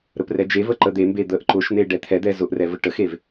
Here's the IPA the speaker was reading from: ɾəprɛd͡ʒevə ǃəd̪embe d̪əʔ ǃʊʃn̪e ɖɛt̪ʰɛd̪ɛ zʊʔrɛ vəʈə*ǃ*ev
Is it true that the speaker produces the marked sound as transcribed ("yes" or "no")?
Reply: no